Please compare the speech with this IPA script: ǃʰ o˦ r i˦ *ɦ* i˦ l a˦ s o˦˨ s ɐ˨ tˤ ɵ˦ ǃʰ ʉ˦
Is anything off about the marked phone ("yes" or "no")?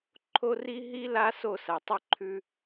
no